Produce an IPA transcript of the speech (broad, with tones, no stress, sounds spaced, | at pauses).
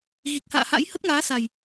ɣ i˨˩ k̚ h a̰ː˧˨ h a̰˧˥ j h ə˦˥ t̚ ŋ aː˨˦ s a˨˩ j